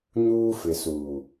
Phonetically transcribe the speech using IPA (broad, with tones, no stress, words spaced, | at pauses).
ɲuː˦fɪ˨suː˨